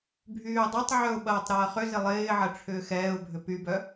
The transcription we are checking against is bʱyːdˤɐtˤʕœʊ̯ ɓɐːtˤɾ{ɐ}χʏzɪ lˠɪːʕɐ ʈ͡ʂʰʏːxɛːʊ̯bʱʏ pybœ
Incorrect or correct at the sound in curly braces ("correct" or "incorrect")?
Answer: incorrect